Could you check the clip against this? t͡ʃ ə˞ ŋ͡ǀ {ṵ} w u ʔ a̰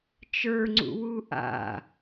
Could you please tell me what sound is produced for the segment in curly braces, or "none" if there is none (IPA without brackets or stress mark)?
ṵ